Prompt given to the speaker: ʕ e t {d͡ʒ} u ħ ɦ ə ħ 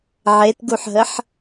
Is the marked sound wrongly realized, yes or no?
yes